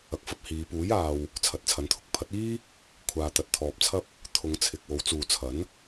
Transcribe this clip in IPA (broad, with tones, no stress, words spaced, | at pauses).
ɐ˨k̚fɐ˧p̚ hiː˨˧ puː˨˥jaː˨w | t͡sʰɐ˨˥t̚t͡sʰɐ˨˥nt̪ʰʊ˧k̚ pʰɐ˨˥t̚iː˥ | kʷʰaː˨t̪ɐ˨t̚t̪ʰɔː˨p̚t͡sʰɐ˥p̚ | t̪ʰʊ˨˧ŋt͡sʰɪ˨k̚wo˨˥w t͡suː˨t͡sʰɐ˨˥n